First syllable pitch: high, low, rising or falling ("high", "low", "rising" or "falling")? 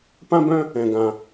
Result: high